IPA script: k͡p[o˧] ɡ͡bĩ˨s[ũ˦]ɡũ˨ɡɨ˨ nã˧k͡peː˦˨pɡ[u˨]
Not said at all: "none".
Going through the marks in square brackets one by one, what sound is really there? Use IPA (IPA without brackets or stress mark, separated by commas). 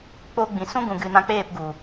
o˧, ũ˦, u˨